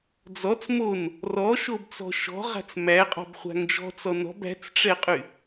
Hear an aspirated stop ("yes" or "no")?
no